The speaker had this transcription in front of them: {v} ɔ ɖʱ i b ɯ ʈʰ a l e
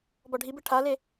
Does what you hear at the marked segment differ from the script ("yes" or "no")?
yes